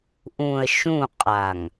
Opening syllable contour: low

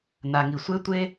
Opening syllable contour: low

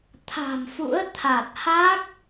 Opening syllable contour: low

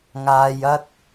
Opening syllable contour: low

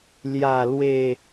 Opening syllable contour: falling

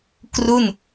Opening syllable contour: falling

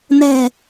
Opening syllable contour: low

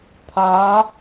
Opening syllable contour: rising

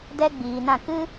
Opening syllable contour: high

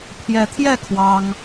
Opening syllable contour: rising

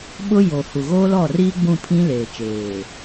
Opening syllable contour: high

